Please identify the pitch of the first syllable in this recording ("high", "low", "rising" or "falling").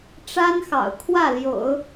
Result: high